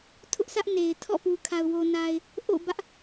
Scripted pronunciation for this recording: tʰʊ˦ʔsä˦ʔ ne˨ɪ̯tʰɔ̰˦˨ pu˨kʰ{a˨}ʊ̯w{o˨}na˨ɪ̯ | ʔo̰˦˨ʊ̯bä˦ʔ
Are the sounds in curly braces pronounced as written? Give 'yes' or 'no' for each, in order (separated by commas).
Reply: yes, yes